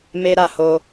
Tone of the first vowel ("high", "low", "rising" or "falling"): high